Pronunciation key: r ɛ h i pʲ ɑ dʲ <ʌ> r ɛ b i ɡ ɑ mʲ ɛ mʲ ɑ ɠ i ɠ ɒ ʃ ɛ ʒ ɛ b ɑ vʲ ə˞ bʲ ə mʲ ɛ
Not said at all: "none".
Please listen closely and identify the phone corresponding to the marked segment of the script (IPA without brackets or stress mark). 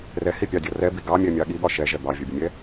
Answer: ɒ